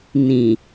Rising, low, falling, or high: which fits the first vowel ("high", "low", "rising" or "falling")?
low